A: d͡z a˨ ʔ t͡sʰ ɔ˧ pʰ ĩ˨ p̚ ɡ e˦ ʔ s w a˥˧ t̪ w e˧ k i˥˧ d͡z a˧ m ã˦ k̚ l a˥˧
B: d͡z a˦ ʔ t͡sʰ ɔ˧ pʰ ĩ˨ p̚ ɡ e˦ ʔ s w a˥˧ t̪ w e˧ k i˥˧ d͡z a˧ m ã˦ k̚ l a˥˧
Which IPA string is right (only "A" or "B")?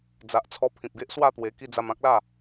A